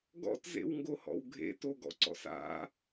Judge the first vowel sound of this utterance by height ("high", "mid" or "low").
mid